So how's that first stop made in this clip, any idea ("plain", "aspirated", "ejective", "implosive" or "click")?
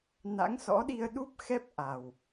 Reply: implosive